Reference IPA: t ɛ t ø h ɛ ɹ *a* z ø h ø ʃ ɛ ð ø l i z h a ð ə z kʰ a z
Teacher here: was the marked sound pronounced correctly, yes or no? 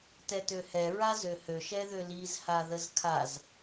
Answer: yes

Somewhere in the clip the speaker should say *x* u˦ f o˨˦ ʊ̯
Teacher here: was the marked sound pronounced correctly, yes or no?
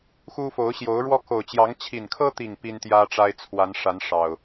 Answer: yes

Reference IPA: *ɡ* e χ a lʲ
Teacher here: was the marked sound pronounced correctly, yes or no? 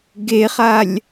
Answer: yes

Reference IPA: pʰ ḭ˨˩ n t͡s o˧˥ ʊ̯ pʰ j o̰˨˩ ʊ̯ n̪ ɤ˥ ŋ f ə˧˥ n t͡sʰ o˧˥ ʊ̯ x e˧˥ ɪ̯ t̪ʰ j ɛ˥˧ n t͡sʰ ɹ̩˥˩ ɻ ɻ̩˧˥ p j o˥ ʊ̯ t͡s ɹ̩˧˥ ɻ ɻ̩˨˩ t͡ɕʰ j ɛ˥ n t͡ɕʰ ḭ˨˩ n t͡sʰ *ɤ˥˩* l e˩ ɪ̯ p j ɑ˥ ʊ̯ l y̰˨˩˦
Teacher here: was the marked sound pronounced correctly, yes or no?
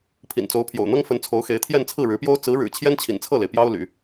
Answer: yes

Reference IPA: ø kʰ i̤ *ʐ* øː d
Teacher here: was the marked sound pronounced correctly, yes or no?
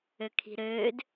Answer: no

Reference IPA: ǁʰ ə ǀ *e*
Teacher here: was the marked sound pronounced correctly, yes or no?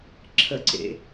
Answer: no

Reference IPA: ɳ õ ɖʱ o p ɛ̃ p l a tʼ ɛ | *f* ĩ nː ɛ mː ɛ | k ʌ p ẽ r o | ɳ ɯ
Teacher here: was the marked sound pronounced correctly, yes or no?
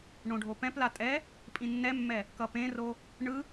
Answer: no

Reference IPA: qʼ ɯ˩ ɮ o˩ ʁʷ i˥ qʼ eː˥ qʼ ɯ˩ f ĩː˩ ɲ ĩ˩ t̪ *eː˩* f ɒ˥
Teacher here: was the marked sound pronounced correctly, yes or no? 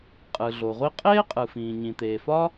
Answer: yes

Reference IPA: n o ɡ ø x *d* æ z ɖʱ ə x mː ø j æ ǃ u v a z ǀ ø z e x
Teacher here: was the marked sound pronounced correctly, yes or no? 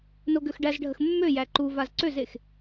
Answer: no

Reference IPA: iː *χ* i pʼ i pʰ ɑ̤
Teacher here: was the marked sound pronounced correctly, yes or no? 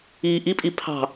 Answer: no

